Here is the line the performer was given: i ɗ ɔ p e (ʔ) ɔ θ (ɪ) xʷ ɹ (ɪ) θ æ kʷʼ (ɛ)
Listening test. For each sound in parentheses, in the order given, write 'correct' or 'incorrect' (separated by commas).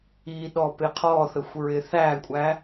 incorrect, incorrect, correct, incorrect